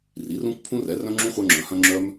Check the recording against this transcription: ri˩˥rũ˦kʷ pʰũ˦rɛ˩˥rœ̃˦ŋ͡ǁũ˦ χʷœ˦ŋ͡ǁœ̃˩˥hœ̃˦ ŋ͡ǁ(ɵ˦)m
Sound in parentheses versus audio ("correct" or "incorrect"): incorrect